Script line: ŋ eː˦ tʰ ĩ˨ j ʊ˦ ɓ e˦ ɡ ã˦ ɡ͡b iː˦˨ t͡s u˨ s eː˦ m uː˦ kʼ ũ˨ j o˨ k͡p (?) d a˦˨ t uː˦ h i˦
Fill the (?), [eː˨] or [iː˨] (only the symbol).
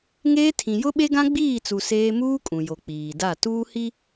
iː˨